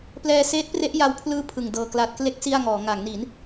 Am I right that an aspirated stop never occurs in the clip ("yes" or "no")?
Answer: no